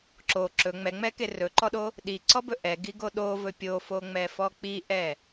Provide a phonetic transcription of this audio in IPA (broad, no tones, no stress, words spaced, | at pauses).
ǁo ǁɵ ŋ͡mɛŋ͡mɛke rɵǃɔɗo | ɗiǀɔbɵ ʔɛɡiɡo ɗovɵ pʲofoŋ͡mɛfɔ k͡piʔɛ